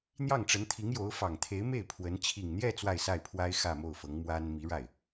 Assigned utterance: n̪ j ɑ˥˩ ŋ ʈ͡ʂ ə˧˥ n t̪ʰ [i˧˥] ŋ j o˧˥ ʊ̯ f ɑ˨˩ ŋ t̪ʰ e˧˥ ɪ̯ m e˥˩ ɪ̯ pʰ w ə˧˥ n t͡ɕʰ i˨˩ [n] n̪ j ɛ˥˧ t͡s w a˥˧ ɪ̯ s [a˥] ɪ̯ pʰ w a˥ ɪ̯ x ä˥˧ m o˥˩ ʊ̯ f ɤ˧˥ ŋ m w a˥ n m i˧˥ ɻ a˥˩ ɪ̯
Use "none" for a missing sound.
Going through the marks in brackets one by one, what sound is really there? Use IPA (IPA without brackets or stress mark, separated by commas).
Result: i˧˥, ŋ, a˥˩